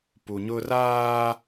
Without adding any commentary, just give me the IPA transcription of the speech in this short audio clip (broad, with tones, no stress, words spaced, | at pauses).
pu˨ɲʊ˦ raː˦